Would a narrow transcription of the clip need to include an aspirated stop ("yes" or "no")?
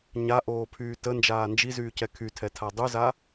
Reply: yes